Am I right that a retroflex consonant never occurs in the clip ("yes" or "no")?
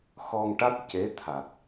no